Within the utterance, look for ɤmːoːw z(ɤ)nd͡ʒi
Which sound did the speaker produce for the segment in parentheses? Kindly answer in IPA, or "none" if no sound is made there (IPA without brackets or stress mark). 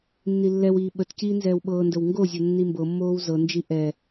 ɤ